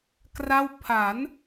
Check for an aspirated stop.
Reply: present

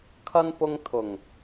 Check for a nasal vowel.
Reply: absent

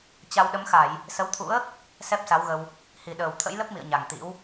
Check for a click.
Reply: absent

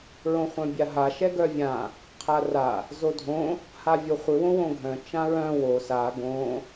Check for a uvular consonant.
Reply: present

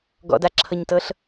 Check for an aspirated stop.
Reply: present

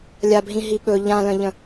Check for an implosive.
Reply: present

